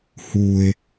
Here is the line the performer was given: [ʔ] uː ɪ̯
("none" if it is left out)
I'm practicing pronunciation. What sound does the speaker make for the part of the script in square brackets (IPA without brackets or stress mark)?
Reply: h